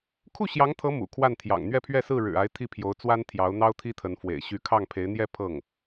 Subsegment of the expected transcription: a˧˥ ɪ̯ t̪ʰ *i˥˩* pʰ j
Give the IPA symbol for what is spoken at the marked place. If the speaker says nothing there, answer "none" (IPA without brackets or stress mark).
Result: i˥˩